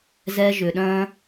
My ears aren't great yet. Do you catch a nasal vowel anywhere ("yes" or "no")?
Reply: yes